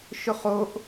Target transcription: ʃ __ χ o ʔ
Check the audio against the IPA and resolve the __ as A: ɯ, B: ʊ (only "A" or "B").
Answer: B